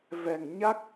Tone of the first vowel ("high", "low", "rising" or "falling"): low